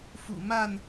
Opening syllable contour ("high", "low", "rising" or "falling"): low